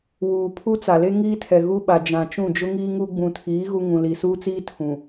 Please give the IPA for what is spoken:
w uː˨ pʰ u˦ t͡s a˨ l e˦ ŋ iː˦ tʰ ɛ˨ ɣ u˦ ɓ a˨ d͡ʒ ã˨ t͡ʃ ũ˦˨ d͡ʒ ʊ˦ ŋ iː˦ ŋ u˦ ɡ͡b ũ˨ tʰ iː˨˦ ɣ u˦ ŋ ũ˨ l i˨ s uː˦ t͡s iː˦ tʰ ũ˨

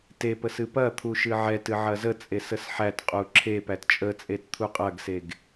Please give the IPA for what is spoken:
t e p ə s ɨ p ɐ t̪ʰ u ʃ ɨ ʕ ɛ t ɨ ʕ ɐ z ə t͡sʼ e s ə s ħ æ t qʼ u ǁʰ e p æ t t͡ʃʼ ə t͡sʼ e t t̪ʰ u qʼ ɐ ɡ s e ɡ

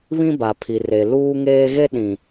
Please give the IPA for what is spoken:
β ĩ˦ b a˨ pʰ i˨ r e˨ l uː˦ ŋ eː˦ ɣ e˦ ɗ ĩ˨

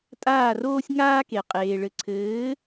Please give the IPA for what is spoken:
tʼ aː˥˩ r oː˥ sʲ ŋ aː˥ k e˩ qʼ eː˩ ɭ ɘ˩˥ ǀʰ ɘː˩˥

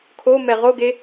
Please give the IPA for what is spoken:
kʰ o m ɛ ʁ o ɡ e

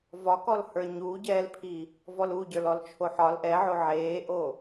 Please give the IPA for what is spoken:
v ɒ k ɔ l h ə˞ ɲ u ɟ ɛː l pʰ i | v ɔ l u ɟ ə˞ l ɔ l t͡ʃʰ o ħ ɒ l ʔ ɛ ʕ o ʕ eː ʔ o

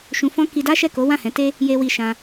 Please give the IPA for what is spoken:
ʃ ũ˧ f ɔ̃˦ k i˧ d a˦ ʃ ɛ˦˨ k o˨˦ w ã˦˨ h ɛ̃˨˦ t e˦ | j e˧ w i˧ ʃ ã˧

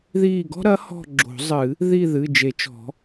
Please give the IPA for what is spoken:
ð iː˦˨ ɡ ɔ̤˥ ɾ ɐ˨˥ h ɔ̤˦˨ ɡ͡ǁ o̤˨˩˦ zˤ ɨ˨˩˦ | ð i˦˨ ð ɨ˩˧˩ d͡ʒ e˨˩˦ t͡ʃ ɔ̤˨˩˦

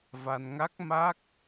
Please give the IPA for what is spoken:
v a˧ n ŋ a˦˥ k̚ m a˦˥ k̚

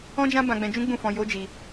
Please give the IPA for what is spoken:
ɔ̃˦ d͡ʒ ã˦ b ã˧ ɡ͡b ɛ̃˧ d͡ʒ ũ˦ ɡ͡b ũ˦˨ f ɔ̃˧ j o˦ d͡ʒ i˧

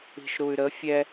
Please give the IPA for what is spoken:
i̤ ʃ ɾ u y̯ ɾ ə fʲ ɛ

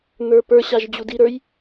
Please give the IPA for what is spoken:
n̪ ə˞ p ə˞ ɕ a ʒ d͡ʑ u d i ɾ ə˞ j

